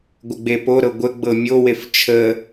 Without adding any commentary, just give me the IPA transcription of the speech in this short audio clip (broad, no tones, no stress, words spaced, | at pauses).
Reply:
ɡʷəɡ͡bepoɾɤ ɡʷəɡ͡bɤ mʲowef t͡ʃʰə